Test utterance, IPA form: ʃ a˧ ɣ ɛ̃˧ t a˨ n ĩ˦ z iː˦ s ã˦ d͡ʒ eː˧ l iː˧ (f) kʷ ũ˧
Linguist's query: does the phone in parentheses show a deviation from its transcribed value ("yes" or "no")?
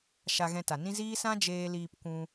yes